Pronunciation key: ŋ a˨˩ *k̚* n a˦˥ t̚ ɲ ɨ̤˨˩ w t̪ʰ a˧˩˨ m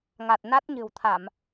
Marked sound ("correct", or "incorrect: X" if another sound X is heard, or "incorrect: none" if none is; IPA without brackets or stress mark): incorrect: t̚